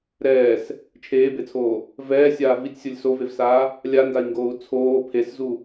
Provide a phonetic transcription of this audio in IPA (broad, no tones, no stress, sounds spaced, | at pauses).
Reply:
ɾ ɛː s | t͡ʃʰ eː b e t͡sʰ oː | v ɛː sʲ aː v i tʲ sʲ o lʲ s o v e v s aː | lʲ a n d a i̯ ŋ ɡ oː u̯ t͡sʰ oː pʰ e s z u